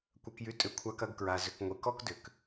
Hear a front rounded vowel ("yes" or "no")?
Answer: yes